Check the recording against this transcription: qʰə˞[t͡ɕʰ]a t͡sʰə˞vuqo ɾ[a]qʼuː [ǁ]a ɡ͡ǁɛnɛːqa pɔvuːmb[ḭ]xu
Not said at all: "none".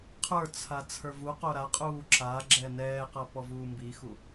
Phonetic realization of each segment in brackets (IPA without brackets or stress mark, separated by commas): t͡sʰ, a, ǁ, i